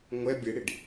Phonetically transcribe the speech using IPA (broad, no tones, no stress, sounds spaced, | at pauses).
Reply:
ŋʷ ɛ bʲ e ɽ i ɖ